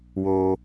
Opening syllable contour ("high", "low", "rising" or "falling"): high